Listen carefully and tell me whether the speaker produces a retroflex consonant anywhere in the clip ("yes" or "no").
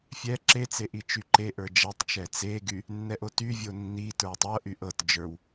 no